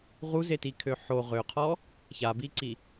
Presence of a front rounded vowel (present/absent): present